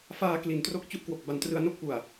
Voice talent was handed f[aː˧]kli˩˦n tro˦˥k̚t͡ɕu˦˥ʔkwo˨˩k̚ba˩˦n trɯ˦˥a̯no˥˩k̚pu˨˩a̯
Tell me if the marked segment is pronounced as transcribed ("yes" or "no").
yes